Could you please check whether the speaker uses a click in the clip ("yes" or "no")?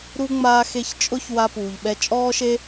no